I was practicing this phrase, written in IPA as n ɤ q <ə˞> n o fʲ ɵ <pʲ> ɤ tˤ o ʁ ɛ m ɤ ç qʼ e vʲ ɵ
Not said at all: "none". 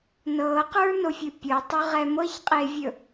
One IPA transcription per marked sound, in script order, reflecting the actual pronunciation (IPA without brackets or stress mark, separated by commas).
ə˞, pʲ